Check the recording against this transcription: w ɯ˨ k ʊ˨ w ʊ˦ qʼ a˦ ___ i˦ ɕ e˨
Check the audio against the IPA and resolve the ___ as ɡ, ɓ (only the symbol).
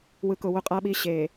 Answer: ɓ